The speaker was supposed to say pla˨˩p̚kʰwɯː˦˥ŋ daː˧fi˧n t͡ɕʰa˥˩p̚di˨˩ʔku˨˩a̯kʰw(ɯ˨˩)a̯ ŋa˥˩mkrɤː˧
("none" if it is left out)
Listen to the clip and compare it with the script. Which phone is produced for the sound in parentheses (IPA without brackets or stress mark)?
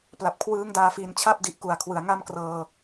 ɯ˩˦